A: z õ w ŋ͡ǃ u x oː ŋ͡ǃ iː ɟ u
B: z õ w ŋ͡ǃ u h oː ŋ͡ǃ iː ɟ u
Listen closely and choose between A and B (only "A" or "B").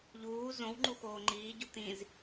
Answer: A